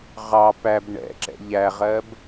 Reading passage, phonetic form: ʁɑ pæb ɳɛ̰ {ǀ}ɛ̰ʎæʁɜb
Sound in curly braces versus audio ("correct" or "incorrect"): incorrect